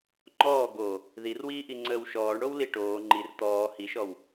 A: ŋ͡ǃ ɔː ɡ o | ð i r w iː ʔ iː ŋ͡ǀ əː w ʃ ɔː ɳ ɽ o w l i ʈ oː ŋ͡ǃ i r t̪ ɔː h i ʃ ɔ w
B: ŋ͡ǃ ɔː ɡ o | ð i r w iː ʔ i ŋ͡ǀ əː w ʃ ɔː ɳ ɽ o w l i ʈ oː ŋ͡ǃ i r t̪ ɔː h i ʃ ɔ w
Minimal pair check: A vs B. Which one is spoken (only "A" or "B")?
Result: B